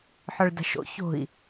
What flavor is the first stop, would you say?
plain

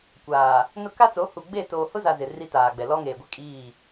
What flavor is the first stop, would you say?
plain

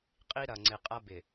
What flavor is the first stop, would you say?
ejective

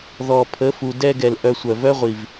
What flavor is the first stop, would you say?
aspirated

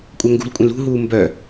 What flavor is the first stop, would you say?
ejective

